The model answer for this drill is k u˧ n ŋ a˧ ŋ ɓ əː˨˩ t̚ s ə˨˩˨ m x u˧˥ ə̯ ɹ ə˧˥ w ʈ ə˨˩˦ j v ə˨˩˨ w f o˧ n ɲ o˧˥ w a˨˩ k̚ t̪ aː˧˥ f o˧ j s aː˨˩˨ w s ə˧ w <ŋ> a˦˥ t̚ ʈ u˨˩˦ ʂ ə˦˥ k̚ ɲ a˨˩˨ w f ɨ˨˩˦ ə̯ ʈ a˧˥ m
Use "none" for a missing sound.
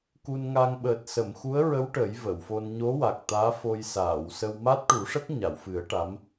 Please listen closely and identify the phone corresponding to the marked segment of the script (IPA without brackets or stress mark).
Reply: m